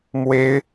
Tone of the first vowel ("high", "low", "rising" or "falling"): high